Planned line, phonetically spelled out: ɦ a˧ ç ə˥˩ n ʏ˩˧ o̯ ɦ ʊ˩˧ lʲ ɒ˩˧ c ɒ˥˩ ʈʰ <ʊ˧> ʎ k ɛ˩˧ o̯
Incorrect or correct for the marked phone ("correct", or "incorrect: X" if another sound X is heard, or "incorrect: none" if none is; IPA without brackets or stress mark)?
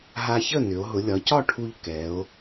incorrect: u˧